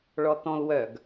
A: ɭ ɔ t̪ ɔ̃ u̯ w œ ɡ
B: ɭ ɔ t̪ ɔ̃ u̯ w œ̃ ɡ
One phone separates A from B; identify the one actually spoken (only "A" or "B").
A